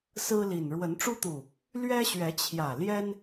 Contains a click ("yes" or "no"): no